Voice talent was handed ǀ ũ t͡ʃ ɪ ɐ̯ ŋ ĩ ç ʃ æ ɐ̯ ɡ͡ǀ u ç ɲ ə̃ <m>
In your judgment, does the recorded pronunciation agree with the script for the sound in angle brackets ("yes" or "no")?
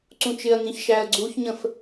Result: no